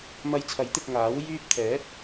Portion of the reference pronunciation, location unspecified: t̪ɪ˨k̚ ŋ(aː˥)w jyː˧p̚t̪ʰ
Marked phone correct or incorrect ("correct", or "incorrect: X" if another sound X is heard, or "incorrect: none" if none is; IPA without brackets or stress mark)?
incorrect: aː˨˥